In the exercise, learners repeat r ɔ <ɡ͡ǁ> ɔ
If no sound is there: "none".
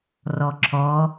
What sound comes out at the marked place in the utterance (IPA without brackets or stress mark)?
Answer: ǁʰ